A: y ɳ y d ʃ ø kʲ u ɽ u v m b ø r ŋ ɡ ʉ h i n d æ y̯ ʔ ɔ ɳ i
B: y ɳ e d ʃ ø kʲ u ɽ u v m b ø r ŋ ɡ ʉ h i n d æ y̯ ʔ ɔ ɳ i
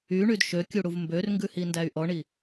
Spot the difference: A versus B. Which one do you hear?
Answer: A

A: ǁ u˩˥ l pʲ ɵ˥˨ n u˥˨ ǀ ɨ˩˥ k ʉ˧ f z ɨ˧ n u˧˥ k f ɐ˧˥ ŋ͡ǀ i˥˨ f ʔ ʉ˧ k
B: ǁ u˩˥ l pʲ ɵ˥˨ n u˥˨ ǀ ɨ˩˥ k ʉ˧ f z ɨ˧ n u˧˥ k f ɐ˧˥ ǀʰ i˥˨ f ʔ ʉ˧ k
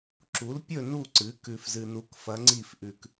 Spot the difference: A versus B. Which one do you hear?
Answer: A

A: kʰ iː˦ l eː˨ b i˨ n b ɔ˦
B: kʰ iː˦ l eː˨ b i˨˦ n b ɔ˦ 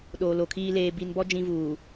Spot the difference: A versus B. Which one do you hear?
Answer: A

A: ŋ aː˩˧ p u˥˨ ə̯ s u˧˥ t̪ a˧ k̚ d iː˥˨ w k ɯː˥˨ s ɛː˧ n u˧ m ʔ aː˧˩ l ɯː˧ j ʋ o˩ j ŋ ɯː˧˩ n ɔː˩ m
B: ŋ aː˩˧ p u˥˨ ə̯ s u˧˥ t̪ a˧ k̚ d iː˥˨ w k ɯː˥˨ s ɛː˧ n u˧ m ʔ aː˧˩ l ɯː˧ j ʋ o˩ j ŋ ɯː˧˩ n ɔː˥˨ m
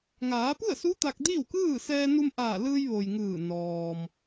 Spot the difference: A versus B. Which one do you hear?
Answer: A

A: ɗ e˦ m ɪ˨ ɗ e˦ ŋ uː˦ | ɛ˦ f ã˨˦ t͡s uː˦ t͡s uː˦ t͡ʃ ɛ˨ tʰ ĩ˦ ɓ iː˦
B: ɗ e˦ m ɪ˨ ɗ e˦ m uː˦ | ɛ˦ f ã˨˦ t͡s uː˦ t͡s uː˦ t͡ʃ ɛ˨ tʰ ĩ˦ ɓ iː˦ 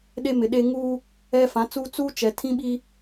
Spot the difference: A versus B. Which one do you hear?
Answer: A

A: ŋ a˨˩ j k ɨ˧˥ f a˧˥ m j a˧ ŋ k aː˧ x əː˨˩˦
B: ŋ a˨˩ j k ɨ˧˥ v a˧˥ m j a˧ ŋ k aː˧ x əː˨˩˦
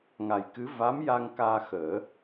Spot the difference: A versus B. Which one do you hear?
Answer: B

